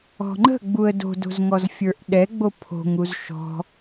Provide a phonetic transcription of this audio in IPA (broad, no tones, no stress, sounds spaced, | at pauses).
ɔ̤ ŋ͡ǃ ə̤ ɡ͡b u ə̯ d o̤ d o̤ z ŋ ɔ z fʲ ə˞ ʔ ɗ ɛ ɡ͡b o pʰ o̤ ŋ u z ʃ ɔ̤